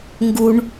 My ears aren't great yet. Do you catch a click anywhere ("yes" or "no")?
no